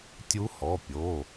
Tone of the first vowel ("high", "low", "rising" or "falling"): rising